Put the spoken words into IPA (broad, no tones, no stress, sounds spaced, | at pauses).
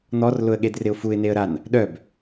n̪ ɔ r l ʊ ə̯ ɠ e d r ɪ ʊ̯ f u ɪ̯ n e ə̯ ɾ a n | ɗ œ b